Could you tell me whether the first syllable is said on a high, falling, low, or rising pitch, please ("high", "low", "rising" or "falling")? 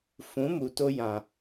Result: rising